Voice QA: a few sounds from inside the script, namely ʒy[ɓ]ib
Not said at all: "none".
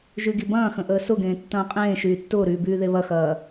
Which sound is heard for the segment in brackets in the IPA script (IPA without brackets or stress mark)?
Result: ɡ